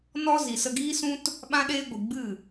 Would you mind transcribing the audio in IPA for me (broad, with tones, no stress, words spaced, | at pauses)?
nɔ˦ zi˨sə˧ɡiː˦sũ˦t | ɓã˦ɗeː˦ ɡʷi˨ɡ͡bɨ˦˨